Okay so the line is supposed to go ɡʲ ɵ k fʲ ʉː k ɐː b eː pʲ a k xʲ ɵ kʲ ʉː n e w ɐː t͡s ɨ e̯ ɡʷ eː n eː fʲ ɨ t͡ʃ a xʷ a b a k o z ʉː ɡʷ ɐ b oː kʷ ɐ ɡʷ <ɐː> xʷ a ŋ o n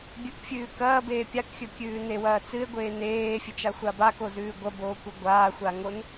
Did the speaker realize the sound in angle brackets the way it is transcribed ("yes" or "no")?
no